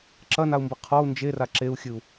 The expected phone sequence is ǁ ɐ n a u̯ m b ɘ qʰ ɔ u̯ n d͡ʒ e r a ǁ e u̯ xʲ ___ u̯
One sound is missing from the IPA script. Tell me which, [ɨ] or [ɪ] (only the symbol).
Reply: ɨ